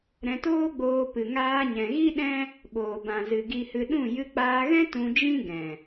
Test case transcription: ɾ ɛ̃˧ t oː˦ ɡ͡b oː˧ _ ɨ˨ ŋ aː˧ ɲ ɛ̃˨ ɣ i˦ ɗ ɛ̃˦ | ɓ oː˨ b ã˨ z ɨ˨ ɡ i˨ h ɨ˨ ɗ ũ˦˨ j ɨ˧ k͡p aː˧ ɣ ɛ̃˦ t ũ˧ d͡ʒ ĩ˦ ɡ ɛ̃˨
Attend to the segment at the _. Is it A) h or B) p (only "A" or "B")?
B